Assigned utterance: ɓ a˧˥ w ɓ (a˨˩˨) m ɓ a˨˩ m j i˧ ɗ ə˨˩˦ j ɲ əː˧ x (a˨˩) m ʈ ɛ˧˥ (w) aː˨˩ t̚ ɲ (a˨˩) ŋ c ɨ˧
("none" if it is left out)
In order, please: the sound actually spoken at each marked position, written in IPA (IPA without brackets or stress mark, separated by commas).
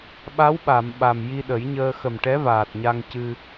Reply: a˨˩˨, ə˨˩, v, a˧